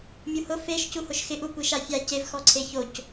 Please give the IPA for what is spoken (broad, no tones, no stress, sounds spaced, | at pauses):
mʲ u h ʊ f e ʃ c u h ʊ ʃ x ɪ ʔ u kʷ i ʃ a fʲ a c e v x ɔ ǀʰ e ç o c